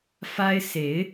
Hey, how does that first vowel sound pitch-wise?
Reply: high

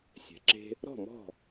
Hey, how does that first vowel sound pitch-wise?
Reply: rising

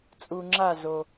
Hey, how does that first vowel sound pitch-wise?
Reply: low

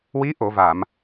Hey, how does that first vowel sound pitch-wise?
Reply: rising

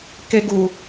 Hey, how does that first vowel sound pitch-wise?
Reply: high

